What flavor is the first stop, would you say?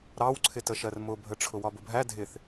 click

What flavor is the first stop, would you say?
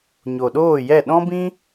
implosive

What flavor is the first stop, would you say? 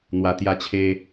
plain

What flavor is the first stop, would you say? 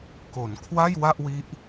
plain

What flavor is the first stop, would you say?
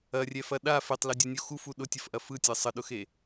implosive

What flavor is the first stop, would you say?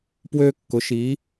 plain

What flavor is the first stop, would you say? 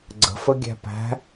click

